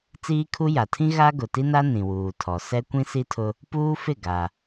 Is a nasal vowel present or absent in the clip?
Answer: present